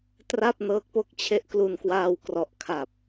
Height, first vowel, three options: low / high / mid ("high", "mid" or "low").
low